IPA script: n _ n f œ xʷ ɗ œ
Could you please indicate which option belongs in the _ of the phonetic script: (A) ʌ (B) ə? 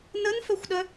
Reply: B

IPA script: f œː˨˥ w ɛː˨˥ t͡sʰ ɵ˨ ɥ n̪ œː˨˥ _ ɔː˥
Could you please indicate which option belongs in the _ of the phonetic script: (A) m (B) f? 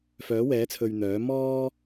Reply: A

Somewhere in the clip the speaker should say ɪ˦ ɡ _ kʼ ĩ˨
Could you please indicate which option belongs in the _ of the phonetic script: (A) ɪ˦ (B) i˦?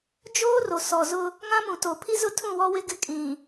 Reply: A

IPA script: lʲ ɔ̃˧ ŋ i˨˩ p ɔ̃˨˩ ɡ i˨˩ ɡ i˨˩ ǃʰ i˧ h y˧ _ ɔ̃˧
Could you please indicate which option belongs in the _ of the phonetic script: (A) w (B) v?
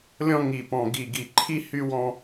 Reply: A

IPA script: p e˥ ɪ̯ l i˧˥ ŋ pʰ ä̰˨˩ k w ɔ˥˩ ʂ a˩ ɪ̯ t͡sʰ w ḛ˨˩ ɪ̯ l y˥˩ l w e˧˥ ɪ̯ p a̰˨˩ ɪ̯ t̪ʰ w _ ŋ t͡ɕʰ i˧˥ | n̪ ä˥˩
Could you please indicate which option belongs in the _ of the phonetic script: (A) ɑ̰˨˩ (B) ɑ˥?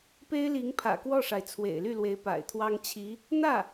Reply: B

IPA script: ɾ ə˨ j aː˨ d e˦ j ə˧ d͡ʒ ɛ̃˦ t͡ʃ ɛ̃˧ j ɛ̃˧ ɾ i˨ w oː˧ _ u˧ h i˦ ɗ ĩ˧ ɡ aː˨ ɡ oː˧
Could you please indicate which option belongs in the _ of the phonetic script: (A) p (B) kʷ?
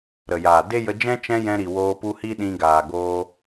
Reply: A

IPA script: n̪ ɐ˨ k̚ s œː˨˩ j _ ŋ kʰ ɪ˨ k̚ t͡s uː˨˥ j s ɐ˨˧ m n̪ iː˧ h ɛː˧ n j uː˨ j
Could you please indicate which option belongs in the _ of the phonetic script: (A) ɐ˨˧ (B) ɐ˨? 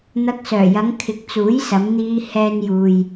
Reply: A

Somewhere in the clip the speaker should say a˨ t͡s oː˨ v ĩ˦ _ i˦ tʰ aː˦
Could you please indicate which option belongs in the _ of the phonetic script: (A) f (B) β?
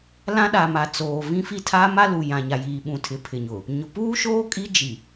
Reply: A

